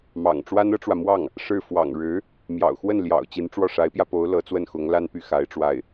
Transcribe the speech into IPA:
m ɑ̰˨˩ ŋ ʈ͡ʂ w a˥ n ɤ˥ ʈ͡ʂ w ä˨ m w ɑ˥˩ ŋ | ʂ ɻ̩˥˩ f w ɑ̰˨˩ ŋ ɻ ɻ̩˧˥ | m j ɑ̰˨˩ ʊ̯ x w ə˥˩ n l j ɑ̰˨˩ ʊ̯ t͡ɕ i˧˥ n ʈ͡ʂ w ɔ˥˩ ʂ a˧˥ ɪ̯ p j ä˧ p o˧˥ ʊ̯ l ɤ˧˥ t͡s w ə˥˩ n x ʊ˧˥ ŋ l a˥ n p y˥˩ x a˧˥ ɪ̯ ʈ͡ʂ w a˥˩ ɪ̯

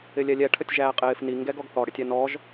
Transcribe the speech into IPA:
ɪ lʲ ɛ lʲ ɛ ʈʰ ə tʲ ʒ æː qʼ ɪː f n i ŋ ɡ ɛ ɡ ɔ ɡ θ ɔ ɽ ɪ tʲ æ n ɔ ʒ

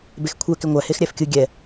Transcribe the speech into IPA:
b e x kʷʰ ɛ k ɪ ŋʷ æ h e x ɾʲ æ f kʲ ɯ ɡʲ ɛ

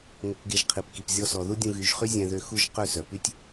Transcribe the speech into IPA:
ŋ o˧ k ɡ e˧ ʒ qʰ i˨ p k i˨ p zʲ ɔ˧ s ɔ˨ ð u˦ dʲ ũ˧ ɣ y˨˦ ʒ χ y˦ zʲ ɛ̃˧ ð ø˧ x u˦ ʒ q ø˦˨ s œ˨ p y˦ tʲ

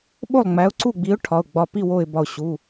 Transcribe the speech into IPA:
ɓ o˥˩ lˠ ŋ͡m æ˨˥ ʊ̯ ǀ u˥˩ ɡ͡b i˨˥ ʊ̯ ʈʰ ɒ˩˧˩ ʊ̯ ɡ͡b ɒ˧˩ p i˥˩ w o˧˩ ɪ̯ b ɒ˧˩ ʊ̯ ɕ u˩˧˩

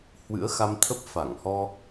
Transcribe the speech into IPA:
h w ɨ̰˧˥ ə̯ x a˧ m t̪ʰ ə˦˥ p̚ f a˧˩ ŋ h ɔ˧

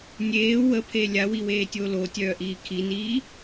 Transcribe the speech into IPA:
nʲ eː w ə pʰ e lʲ a w i w eː tʲ o l o tʲ œː ʔ iː kʰ i n iː

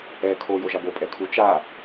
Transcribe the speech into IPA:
ɛ kʰ o j o ʒ a b o pʼ ɛ kʰ u t͡ʃ a

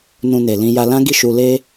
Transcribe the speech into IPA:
n ũ˧ n e˨ l ĩ˧ j a˧ l ã˦ ɡ i˦˨ ʃ u˧ l e˦

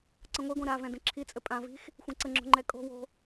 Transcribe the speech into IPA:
ǀ ə̃ ŋʷ i ɡʷ ẽ ɾ a v ɛ̃ d ə̃ ǁʰ i t͡sʼ ɘ pʼ ã v i̤ x | xʷ ɛ̃ ǀ ə ŋ͡ǁ o̤ ŋ͡ǃ ɛ kʼ o̤ w o̤

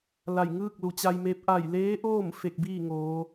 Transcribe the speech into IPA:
l a˧˩ j ŋ ɯː˥˨ k̚ l u˩˧ t͡ɕ a˧ j m e˧˥ p̚ ʔ a˧˩ j l eː˧˥ ʔ oː˥˨ m f e˧˩ k̚ b iː˥˨ ŋ oː˩˧

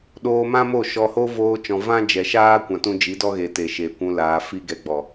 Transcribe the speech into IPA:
ɗ oː˧ m ã˦ m o˦˨ ʃ ɔ˧ h o˦ v oː˧ t͡ʃ ɔ̃˨ v ã˦ d͡ʒ ɛ˨ ʃ aː˦ kʷ ã˨ t ũ˦ d͡ʒ i˨˦ d ɔ˦ ɣ e˨ t e˨ ʃ e˨ kʷ ũ˧ l aː˨ f i˦ ɡ ɛ˧ ɡ͡b ɔ˨

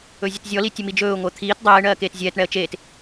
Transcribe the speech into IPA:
ɵ zʲ ə t zʲ ɔ l i tʲ ə m i d͡ʒ ɵː ʊ̯ ŋʷ əː t̪ʰ iː t dˤ ɛː ɪ̯ ɳ ɜː k eː t zʲ ɛː t ɳ ɛ ə̯ t͡ʃ eː t

